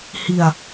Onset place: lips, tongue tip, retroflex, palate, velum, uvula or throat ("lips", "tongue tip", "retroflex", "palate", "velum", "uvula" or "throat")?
throat